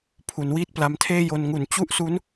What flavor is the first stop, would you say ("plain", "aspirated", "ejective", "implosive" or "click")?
aspirated